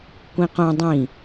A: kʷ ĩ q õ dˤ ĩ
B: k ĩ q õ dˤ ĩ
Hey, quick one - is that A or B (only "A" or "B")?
A